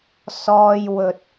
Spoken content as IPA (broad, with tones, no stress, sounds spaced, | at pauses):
s ɔː˥ j w ɵ˧ t̚